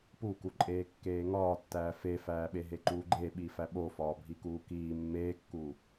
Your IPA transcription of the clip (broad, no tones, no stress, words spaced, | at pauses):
pukuǃʼeː kːeːŋɒːtːæː fefæːɓeɦe ǃuːɡ͡ǃeɓi fæɓofɒː bʱikuːkiː mːeːkːu